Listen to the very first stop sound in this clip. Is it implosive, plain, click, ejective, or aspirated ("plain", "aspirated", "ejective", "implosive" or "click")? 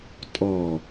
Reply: ejective